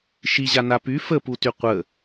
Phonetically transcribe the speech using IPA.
ʃiʑa napy fəputy qʷə

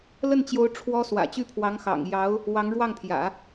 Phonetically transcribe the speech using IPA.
lə˥˩nt͡ɕjo˧˥ʊ̯ ʈ͡ʂʰwɔ˥ swä̰˨˩t͡ɕy˥pʰwɑ˧˥ŋxɑ̰˨˩ŋ jɑ˧˥ʊ̯ | wɑ˧˥ŋɻwɑ˥˩ŋpʰjä̰˨˩˦

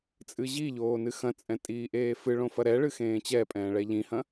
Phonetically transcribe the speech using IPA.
t͡sʼɨʑiʎoː nɨxɐ̃t͡sʼɛ̃ tʼiːʔeːfɨɭõ fɐɾɛɭɨ xẽːt͡ɕɛpʼɛ̃ː ɭɛʎĩhɐ̃

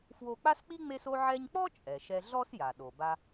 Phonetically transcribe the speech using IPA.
fwo˧k͡pa˥sk͡pi˥ ŋ͡me˥so˥ʕɛ˥ɲ k͡pɔ˥ t͡ʃʼɛ˩ʃɛ˧ɮɔ˥s ja˩ ɗo˩ba˧

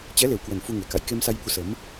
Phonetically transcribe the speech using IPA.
t͡ɕɛ˨˦le˨˩wkwə˨˩n fu˧ŋe˧˩ka̰˧˨j ke˧msa˧jɓu˨˦ sə˨˦m

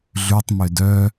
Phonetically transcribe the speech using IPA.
ɮʉtˤmød œ

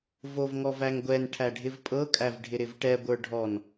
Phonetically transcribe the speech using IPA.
vovŋɔvæŋɡʷɛn ʈʰæɖʱɪvpʼɤ kʼævɖʱɪɾɪvʈɛ ɡʷə˞ɖʱɔn

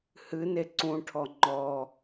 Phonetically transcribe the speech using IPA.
hɨne ǀũʈʰɔ ŋ͡ǃɔ

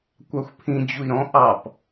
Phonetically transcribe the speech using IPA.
kʷɑxʷpʰĩ d͡ʑui̯ɾɔ̃ ʔɑp

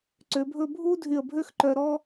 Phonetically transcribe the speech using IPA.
ǀø˩˧bʱɵ˥˧ bʱu˥ dʱy˧˩ə̯bʱø˥xǃœ˧ ɾɔ˥

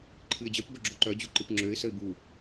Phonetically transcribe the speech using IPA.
ǃʰɨɪ̯d͡ʑœp bœɡ͡ǁoǃœ d͡ʑuǃɨpŋ͡ǁøɪ̯ səɪ̯bu

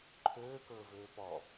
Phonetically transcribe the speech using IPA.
ǃʰøːkɵː vøːpɔ

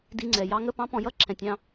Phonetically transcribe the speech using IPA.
di˧ŋ͡ǀɛ˩ jɑ˥ŋə˥pɑ̃˥ pɔ̃˧jʌ˥ǁʰɛ̃˩tʲɑ̃˧

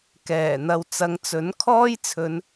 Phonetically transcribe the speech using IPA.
kɛː˨˩ n̪ɐ˨wt͡sɐ˨˧ŋt͡sɵ˨˥n kʰɔː˥jt͡sʰɵ˨˧n

